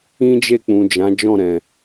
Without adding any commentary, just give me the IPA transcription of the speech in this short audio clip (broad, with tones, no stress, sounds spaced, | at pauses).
ĩ˦ d͡ʒ e˦˨ k͡p ũ˨ d͡ʒ ã˨˦ d͡ʒ ɔ̃˦˨ ɾ ɛ̃˨